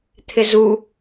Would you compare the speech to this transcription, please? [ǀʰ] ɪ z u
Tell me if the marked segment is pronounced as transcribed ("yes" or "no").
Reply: no